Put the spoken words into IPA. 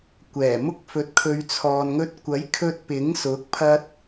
kʷ ɛː˨˩ m ʊ˧ k̚ f ɵ˨˥ t̚ kʰ ɵ˨˧ ɥ t͡sʰ ɔː˨ n ŋ ɵ˧ t̚ kʷ ɐ˨˥ j kʰ ɵ˧ t̚ p ɪ˨˥ ŋ s ʊ˨˥ k̚ pʰ ɐ˧ t̚

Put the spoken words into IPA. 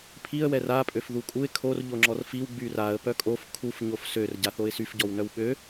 pʰ i ə̯ w ɛ r a pʼ ø f ð u kʼ u ɪ̯ kʰ o r ʎ o ŋ͡ǁ ɔ r f i w ɡ͡b y r a ə̯ p œ kʼ o f kʰ u f ɲ o f s ø r ɟ a θ o ɪ̯ s y f ɟ ɔ w n œ w ɓ ø

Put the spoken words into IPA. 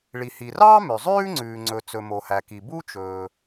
ɭ i˩ h i˩ r ɑː˥ m ø˩ zˤ ʉː˥ ŋ͡ǀ ʉː˩ ŋ͡ǀ ɵ˩ t͡s ɵ˩ m o˩ h æ˩ k i˩ b u˥ t͡ʃ ɵː˩

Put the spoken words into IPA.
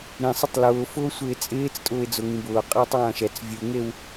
ɾ ĩ sˤ ʊ tˤ l ʊː f ʊː sʷ ɪː t͡sʼ ɪː t͡s tʼ ʊː ɪ̯ d͡z ʊ ŋ ĩ b ʊː qʼ ɪː tˤ w ã ʃ ɛ t͡s vʲ u ŋ e w

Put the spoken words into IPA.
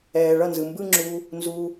ɛː˨ ɭ ʌ˦˨ n z ɯ˨ m b ɯ˦ ŋ͡ǁ u˧ | n z u˧

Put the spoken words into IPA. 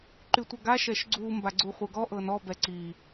ǃ y tʷ ɤ ɡ a ʃ ɛ ʃ ɡ͡ǀ u m b a ɡ͡ǀ u χʷ ə˞ ɡ ɔ ʔ ɤ n ɔ b ɛ ǀ i

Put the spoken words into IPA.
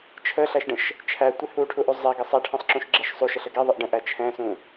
t͡ʃʰ ə ɬ æ ʃ ɖ ə̃ ʃ | t͡ʃʰ æ tʷ ɪ h u ʈʰ u ʔ u zˤ ɛ ɡ ə sˤ æ ʈʰ ɛ̃ sˤ ǁ ũ ʃ ɡ͡ǁ ɛ ʃ sˤ u ʃ ə ɬ ə ɡ ɛ ðˤ ə ʔ ɖ ə̃ ʔ æ t͡ʃʰ ɛ̃ s ũ

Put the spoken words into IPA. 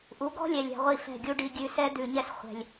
ʔ u˨˦ ɡ ɔ̤˦ lʲ ɛ˨ lʲ ɛ̤˨ ʁʷ i˦˨ f ɛ̤˦˨ ɡʲ u˦ ɖ i˧ ɡʲ ʉ˨ s ɛ˧ d̪ ʉ˨ ɲ ɛ˦ s χʷ ɛ̤˨ lʲ

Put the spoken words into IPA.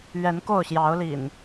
ɥ ɛ˨˦ n k o˥˨ ʊ̯ ɕ j ɑ˨˦ ʊ̯ l ḭ˨˩ n

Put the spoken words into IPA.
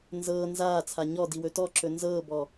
n z ɤː n z aː t͡sʰ a ɲ ɔ d i w ɵ t ɔ ǁ ɵ n z ɤː b ɔ

